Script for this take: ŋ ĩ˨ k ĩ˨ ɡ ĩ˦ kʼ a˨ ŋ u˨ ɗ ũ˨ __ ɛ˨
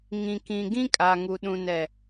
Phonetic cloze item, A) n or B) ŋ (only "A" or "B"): A